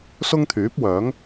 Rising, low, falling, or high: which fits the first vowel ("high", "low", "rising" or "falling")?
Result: high